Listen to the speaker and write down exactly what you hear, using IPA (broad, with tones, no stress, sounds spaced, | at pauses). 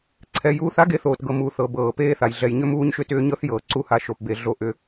ǀʰ ɛ˩ j uː˨ θ a˥ ɡ e˨ θ oː˩ t ɡ ɤ˩ m uː˩ θ ɤ˩ b ɤː˩ p eː˦ θ a˩ j ɮ ɛ˨ j ɲ ʏ˥ m uː˥ ɲ ʃ ʏ˦ t ʏː˥ ɲ ɤ˥ θ j ɤː˩ ǀ u˦ h a˨ ʃ o˩ p b e˩ ɮ o˥ ʔ ʏ˦